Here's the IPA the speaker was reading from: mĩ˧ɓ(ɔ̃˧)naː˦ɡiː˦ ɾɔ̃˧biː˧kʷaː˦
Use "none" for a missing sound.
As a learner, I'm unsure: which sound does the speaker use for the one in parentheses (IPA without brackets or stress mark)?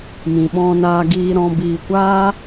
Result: ɔ̃˦